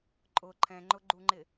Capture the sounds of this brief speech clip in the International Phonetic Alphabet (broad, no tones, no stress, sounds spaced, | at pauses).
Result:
ǃʼ ʊ ǃʰ ɛ̃ ŋ͡ǃ ʊ ɡ͡ǃ u ŋ͡ǃ ɪ